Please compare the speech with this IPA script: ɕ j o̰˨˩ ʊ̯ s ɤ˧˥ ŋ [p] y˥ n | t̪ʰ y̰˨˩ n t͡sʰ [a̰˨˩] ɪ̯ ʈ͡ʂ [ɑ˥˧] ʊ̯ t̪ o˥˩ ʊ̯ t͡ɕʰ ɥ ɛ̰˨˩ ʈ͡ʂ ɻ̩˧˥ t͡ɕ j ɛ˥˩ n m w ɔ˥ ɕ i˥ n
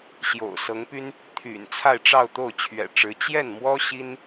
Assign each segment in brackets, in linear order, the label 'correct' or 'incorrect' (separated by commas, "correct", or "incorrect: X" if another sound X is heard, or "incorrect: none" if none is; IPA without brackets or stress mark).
correct, incorrect: a˥˧, correct